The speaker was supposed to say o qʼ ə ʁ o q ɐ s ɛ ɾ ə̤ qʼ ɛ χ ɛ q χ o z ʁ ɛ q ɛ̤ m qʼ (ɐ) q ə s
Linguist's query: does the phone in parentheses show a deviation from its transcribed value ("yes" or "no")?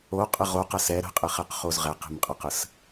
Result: no